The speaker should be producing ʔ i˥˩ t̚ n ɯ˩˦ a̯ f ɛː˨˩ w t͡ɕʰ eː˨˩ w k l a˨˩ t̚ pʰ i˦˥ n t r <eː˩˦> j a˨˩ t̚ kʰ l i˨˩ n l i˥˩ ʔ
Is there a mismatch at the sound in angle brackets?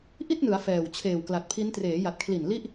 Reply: no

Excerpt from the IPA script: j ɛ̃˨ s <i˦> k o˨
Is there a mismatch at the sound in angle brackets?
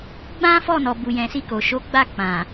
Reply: yes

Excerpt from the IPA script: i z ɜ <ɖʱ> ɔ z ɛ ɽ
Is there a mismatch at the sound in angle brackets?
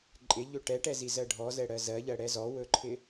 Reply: no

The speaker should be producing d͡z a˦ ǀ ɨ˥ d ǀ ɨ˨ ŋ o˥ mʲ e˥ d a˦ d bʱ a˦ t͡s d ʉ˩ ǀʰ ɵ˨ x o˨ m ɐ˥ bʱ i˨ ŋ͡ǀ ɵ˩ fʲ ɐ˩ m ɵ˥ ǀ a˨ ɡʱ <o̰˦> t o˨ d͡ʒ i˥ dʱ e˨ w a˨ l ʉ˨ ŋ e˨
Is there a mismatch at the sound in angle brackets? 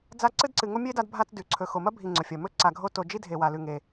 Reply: yes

